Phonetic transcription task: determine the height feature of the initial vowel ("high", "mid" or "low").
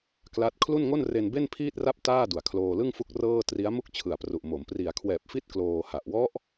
low